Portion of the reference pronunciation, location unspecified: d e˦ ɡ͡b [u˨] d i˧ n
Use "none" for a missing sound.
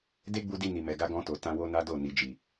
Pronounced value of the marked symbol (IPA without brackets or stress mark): u˧